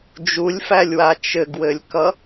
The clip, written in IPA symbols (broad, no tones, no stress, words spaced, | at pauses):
d͡ʒulʲfælʲwa t͡ʃɘɡwɘlʲkʌ